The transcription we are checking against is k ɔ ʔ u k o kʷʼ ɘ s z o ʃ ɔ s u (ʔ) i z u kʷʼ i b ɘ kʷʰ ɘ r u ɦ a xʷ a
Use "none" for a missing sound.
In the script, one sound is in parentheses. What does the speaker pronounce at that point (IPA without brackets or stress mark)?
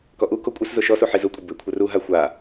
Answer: ħ